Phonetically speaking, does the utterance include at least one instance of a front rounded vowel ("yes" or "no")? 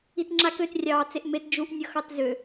yes